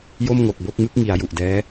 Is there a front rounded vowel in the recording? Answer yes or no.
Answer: no